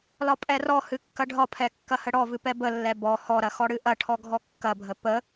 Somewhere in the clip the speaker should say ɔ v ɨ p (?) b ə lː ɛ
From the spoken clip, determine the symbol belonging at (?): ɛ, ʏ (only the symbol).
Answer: ɛ